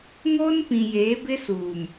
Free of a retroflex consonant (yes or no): yes